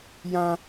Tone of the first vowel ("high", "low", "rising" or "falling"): high